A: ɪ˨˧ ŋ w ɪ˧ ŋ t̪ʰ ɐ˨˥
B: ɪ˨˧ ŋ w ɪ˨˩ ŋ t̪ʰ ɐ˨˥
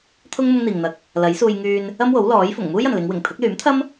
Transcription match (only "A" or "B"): B